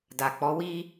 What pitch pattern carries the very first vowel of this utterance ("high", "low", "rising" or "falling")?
low